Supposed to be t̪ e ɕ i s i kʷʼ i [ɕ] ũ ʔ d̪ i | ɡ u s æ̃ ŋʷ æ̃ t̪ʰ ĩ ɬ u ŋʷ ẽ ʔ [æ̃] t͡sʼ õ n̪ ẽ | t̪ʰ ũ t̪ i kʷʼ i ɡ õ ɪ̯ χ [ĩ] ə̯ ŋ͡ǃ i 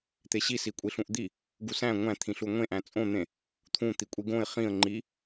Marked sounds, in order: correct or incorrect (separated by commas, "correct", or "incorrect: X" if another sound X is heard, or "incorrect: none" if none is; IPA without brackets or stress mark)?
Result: incorrect: ɬ, correct, correct